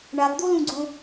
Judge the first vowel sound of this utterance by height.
low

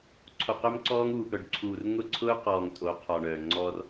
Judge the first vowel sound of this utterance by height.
mid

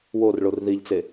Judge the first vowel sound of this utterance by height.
mid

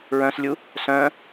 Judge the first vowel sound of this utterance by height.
mid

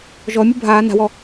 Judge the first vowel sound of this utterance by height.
mid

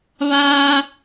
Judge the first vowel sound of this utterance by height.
low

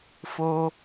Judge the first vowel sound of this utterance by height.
mid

